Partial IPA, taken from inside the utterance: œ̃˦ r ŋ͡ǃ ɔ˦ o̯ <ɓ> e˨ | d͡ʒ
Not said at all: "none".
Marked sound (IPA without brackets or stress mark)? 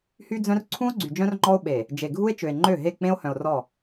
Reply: ɓ